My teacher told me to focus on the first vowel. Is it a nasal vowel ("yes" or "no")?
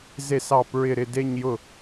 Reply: no